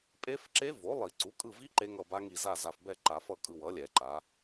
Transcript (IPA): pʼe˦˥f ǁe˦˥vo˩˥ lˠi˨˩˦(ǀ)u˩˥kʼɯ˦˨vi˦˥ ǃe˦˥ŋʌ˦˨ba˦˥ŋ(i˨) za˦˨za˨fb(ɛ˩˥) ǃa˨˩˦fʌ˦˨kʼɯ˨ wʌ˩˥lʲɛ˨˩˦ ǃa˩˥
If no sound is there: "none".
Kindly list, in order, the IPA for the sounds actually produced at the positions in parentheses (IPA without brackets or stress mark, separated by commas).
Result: ǀ, i˦˨, ɛ˦˨